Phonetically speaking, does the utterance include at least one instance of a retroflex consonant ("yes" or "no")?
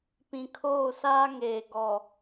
no